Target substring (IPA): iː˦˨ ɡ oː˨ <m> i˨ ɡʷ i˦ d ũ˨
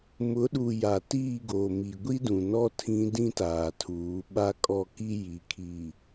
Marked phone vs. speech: correct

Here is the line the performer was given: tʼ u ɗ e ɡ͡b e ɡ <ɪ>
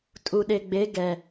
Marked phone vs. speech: incorrect: ɛ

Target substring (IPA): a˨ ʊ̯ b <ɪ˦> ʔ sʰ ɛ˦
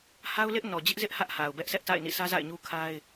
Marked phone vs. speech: incorrect: ɛ˦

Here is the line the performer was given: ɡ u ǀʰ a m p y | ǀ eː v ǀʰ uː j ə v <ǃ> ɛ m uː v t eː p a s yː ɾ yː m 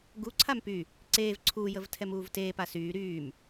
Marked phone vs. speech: incorrect: tʰ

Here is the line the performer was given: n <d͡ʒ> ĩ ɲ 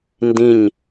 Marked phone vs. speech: incorrect: d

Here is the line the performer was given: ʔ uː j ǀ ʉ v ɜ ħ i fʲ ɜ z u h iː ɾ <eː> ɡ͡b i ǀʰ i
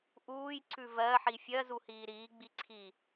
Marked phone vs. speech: incorrect: iː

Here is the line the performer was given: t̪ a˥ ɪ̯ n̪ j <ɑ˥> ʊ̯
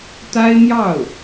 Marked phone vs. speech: incorrect: ɑ˥˩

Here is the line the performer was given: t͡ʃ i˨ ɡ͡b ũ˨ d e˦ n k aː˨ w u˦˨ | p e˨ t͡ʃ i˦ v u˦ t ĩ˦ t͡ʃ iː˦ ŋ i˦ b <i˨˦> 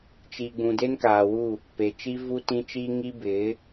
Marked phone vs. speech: incorrect: ɪ˨˦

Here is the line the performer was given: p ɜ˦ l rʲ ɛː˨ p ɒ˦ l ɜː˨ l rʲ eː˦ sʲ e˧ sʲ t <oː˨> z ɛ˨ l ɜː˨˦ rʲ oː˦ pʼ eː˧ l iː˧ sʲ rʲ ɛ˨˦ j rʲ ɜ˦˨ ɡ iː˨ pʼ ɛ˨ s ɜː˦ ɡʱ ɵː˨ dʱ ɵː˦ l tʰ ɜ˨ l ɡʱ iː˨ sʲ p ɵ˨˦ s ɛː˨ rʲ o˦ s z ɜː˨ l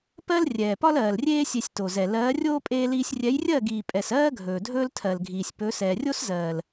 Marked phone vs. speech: incorrect: o˨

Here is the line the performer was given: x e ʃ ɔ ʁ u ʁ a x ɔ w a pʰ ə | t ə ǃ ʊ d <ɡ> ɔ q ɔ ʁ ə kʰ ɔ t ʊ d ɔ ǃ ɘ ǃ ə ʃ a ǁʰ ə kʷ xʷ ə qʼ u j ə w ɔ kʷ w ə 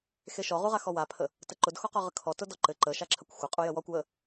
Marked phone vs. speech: incorrect: x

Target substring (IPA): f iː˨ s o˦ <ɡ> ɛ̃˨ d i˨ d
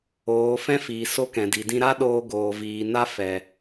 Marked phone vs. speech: incorrect: k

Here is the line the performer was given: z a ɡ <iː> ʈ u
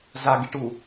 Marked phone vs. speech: incorrect: i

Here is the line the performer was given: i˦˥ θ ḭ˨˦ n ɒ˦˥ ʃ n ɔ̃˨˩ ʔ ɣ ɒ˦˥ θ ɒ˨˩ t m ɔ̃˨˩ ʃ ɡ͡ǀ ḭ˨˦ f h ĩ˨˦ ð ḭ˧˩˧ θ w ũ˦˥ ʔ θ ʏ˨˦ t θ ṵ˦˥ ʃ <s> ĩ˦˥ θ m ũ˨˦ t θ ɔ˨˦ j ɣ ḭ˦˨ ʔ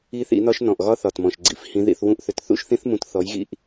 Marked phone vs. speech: incorrect: θ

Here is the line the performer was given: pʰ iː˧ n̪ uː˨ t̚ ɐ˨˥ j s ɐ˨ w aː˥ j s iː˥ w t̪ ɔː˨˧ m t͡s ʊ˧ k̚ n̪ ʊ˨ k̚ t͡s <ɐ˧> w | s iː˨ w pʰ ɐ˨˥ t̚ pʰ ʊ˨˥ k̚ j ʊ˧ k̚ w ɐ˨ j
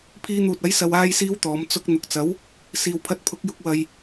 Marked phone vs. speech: incorrect: ɐ˨˥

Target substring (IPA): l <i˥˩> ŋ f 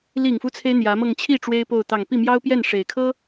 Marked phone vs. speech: incorrect: i˨˩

